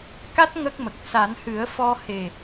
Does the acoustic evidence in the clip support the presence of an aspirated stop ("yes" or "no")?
no